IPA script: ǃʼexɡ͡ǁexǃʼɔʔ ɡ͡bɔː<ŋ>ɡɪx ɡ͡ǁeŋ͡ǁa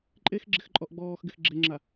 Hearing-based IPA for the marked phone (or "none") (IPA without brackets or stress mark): x